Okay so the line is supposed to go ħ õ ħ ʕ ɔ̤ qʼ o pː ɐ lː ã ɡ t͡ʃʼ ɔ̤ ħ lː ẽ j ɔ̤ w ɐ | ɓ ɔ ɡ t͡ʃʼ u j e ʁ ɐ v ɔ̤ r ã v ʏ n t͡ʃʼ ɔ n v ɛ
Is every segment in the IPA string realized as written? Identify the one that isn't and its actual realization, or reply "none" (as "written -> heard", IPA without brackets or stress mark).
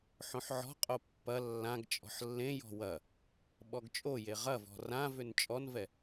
u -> o